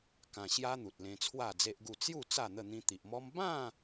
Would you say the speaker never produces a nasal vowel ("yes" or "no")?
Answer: no